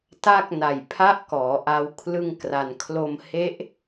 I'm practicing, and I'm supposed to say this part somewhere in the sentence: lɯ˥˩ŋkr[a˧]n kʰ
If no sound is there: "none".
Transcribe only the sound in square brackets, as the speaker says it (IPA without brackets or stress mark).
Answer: a˧